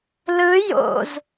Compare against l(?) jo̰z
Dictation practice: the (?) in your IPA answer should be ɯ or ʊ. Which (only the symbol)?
ɯ